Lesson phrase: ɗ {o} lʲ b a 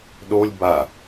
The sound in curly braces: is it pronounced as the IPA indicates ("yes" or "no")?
yes